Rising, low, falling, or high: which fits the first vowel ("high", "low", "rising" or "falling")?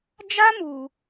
high